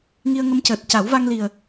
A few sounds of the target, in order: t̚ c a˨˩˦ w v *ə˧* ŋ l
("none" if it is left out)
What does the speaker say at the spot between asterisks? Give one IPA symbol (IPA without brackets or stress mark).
a˧